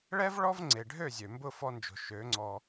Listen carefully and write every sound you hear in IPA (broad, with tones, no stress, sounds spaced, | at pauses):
ɭ ɛ˦ v ɭ ɔ˦ v ŋ͡ǀ e˨ ɖʱ ø˦˨ zʲ ø˨ m b ʊ˦˨ f ɔ˧ n d͡ʒ o̤˨ ʃ ø˨˦ ŋ͡ǀ ɔ˧